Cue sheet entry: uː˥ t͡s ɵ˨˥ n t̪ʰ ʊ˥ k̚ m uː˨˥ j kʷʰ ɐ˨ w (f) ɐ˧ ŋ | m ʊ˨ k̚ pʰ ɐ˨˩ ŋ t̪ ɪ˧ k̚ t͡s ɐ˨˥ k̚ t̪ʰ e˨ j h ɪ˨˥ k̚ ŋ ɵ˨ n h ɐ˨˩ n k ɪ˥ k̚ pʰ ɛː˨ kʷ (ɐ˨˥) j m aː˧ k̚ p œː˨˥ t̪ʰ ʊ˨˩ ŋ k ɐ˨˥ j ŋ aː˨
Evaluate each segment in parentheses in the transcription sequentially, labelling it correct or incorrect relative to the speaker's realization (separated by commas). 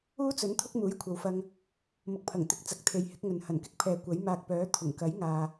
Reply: correct, correct